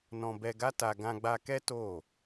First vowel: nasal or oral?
nasal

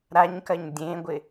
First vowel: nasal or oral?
oral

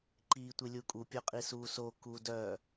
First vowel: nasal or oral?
oral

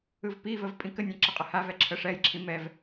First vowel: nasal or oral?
oral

